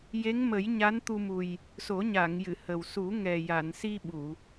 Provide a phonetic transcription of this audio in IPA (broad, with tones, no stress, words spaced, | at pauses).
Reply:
je˧˥ŋmə˨˩˦j ɲa˧˥nt̪u˧mu˨˩j | so˨˩˦ɲa˨˩˨ŋ jɨ˨˩˨hə˨˩w su˨˩˦ŋɛ˨˩ ja˨˩˨nsi˧ ɓu˨˩˨